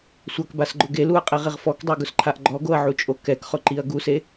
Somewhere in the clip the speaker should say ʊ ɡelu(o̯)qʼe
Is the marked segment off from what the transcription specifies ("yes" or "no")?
yes